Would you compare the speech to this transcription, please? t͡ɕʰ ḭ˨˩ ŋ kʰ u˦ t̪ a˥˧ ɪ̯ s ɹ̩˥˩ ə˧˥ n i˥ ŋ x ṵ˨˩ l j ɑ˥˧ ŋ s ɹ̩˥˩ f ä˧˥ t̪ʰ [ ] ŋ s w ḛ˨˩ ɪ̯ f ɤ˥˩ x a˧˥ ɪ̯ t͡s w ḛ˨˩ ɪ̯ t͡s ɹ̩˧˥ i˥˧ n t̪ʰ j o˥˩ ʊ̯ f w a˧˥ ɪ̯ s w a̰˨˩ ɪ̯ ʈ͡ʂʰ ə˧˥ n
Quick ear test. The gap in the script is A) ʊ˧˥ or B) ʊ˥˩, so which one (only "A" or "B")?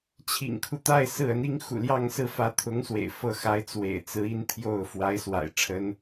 A